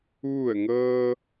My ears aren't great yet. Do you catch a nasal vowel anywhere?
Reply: no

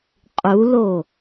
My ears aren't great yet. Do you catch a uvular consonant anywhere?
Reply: yes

